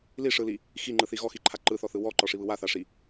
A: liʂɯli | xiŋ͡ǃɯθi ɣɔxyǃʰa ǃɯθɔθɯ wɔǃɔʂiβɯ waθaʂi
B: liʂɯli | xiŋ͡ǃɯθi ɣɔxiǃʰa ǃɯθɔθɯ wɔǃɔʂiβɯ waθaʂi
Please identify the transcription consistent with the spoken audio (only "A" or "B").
B